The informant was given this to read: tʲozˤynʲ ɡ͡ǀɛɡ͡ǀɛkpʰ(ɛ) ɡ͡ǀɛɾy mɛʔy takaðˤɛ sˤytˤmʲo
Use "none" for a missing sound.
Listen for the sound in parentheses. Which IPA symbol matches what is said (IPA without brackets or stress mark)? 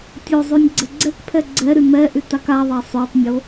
ɛ